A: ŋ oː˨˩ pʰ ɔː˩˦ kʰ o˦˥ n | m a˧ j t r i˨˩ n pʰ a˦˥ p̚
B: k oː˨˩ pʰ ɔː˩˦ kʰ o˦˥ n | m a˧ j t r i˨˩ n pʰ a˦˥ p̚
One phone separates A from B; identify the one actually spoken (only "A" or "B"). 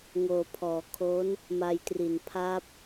A